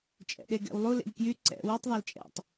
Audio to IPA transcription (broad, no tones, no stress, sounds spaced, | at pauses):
t͡ʃʼ ɛ̰ ɗ e ɡ ɛ̰ w lˠ u l ḛ ʎ k j y ǀ ɛ̰ w u tˤ ðˤ ɑ l t͡ʃʼ ɛ̰ tˤ